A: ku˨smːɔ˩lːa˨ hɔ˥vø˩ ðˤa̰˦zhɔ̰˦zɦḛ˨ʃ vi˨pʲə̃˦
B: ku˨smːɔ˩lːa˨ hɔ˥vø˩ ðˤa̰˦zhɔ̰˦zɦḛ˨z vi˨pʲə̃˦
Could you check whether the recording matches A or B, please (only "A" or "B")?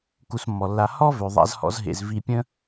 B